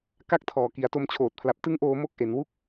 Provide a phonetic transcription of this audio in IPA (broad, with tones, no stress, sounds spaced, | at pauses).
k a˥˩ k̚ tʰ ɔː˨˩ k i˩˦ a̯ t o˧ m t͡ɕʰ oː˨˩ t̚ pʰ l a˨˩ p̚ t ɯ˦˥ ŋ ʔ oː˧ m o˦˥ k̚ ʔ e˩˦ n w u˥˩ k̚